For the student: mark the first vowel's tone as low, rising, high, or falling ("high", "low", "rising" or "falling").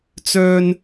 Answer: high